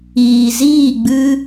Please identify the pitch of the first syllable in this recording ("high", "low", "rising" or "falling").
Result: low